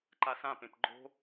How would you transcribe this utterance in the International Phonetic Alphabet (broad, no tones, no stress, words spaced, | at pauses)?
ǃasãpẽp ɡ͡ǃo̤